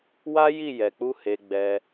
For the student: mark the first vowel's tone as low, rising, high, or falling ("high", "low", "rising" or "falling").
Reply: high